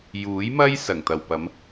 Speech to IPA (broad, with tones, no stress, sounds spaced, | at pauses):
j uː˨˥ j m ɐ˥ j s ɐ˨˩ ŋ t̪ ɐ˨ w p ɐ˨˥ m